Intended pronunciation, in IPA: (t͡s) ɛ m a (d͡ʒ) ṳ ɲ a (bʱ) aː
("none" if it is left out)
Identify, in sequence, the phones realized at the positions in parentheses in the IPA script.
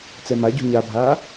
t͡s, ɟ, bʱ

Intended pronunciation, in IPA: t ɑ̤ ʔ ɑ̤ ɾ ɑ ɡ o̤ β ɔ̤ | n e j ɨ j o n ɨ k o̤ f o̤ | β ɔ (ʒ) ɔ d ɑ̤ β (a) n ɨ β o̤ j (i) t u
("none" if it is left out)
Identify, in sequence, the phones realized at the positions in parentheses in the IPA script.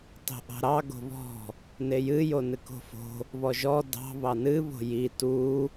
ʒ, ɑ, i

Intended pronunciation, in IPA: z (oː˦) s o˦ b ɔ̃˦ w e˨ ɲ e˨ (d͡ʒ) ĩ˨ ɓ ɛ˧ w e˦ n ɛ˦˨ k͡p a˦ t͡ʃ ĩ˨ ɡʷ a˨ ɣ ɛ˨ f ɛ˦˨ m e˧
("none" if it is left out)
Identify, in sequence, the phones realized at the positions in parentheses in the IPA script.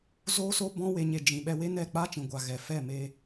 oː˦, d͡ʒ

